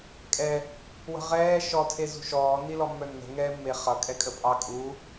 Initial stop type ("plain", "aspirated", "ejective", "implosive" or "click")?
ejective